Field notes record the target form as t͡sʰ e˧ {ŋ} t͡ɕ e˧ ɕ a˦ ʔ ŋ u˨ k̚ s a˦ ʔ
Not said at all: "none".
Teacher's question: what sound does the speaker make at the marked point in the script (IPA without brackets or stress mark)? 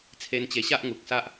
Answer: n